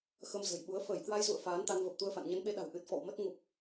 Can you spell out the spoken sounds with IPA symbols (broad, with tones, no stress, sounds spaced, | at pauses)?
x ə˧ m z ə̤˨˩ j ɓ u˨˦ ə̯ f əː˧˩ j k w a˧ j z ṵ˧˨ ə̯ f aː˨˦ n t̪ a˧ n v ə˨˩ p̚ t̪ u˧ ə̯ f a̰˧˨ n ɲ ə˨˦ n ɓ e˨˦ ɗ a̤˨˩ w ʔ ɨ˨˩ t̚ f ɔ̰˧˨ w m ə˦˥ t̚ ŋ u˨˩ p̚